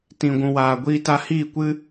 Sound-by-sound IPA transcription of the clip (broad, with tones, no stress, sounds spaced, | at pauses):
t ĩ˨ ɡʷ ũ˨ w aː˨ ɡʷ iː˧ t a˧ h iː˦˨ kʷ ɨ˦